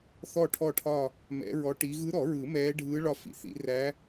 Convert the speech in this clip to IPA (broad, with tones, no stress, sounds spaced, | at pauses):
θ ɔ˦˨ ʈʰ ɔ˦˨ ʈʰ ɒ˦˨ | m ɛ̰˧˥ ɹ ɔ˧˥ ʈ i˧˥ ɣ ɯ˧˥ ɾ ɔ˨˩˦ ɹ ɯ˨˩˦ m ɛː˧˥ ɖʱ ɯː˧˥ ɭ ɒ˦˨ f ḭ˨˩˦ θ ḭ˨˩˦ r æ˧˥